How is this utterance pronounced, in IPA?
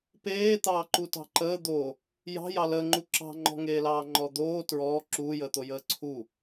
p eː t̪ ɑː ǃ u t ɑ̤ ǃ əː d̪ o | j ɑ̤ j ɑ l əː ŋ͡ǃ u ǁ ɑ̤ ŋ͡ǃ ɔ̤ ŋ eː l ɑː ŋ͡ǃ ɔ d̪ oː t ɹ ɔː ǁ uː j əː t̪ o j əː ǀʰ u

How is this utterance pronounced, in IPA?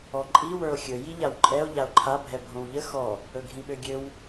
ɔ ǃʼ i w ə˞ o̯ xʲ ɵ j i ʎ a w ǃʼ ɛ o̯ ʎ a o̯ ǃʰ a bʱ ɛ bʱ õ w ʎ ə x ɔ | ɵ ɡʱ ĩ ɓ ø ɡʲ ø w

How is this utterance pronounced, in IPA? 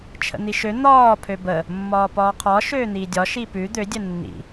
t͡ʃʰ ə̰ n̪ i ʃ ø n̪ ɒː pʰ ø b ə | mː ɒː p ɒː qʰ ɒ ʃ øː n̪ iː dʲ ɒ ʃ i p ʉ d̪ ø dʲ ə nː ḭ

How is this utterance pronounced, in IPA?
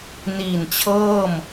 n iː˨˩ n t͡ɕʰ ɤː˥˩ m

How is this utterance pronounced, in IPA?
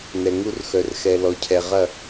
n ɛ˨ ŋ u˦ r x œ˨ r x ɛ˨ l ɔ˨ cʰ ɛ˨ ʁ ɐ˦˨

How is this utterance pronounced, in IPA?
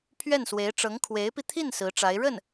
pʰ ɥ ɛ˥˩ n s w e˧˥ ɪ̯ ʈ͡ʂ ɤ˧˥ ŋ kʰ w e˧˥ ɪ̯ p i˧ t̪ʰ i˥˩ n s ɹ̩˧˥ ʈ͡ʂ a˧˥ ɪ̯ ɻ ə˥˩ n

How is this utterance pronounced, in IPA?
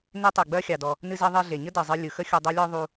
n e˥ tˤ ɨ˩ ɡ͡b ɜ˥ xʲ ɑ˩ d ɔ˩ | n ɨ˧ z ɜ˧ ðˤ e˧ ɮ e˩ ɲ ə˥ d ɜ˩ zˤ ɨ˧ lʲ ɯ˩ x ə˥ xʲ u˧ dˤ ɜ˥ lʲ ɔ˥ ðˤ u˧

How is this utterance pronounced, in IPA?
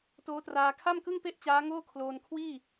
t oː˦˥ t r aː˧ kʰ a˥˩ m k ɯ˥˩ ŋ p e˥˩ ʔ t͡ɕ aː˦˥ ŋ oː˥˩ kʰ l oː˧ n kʰ w iː˥˩

